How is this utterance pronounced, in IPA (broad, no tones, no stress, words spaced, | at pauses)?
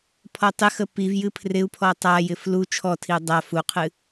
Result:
pʰɔtˤɪxə piv jɨpʰrɪu̯pʰɔ tˤajɪ flu t͡ʃʰɔtʰiu̯ dˤa fuqʰɨ